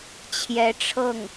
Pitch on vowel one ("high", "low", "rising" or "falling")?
rising